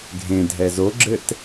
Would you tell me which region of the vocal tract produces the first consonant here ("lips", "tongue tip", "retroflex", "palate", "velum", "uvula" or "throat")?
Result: velum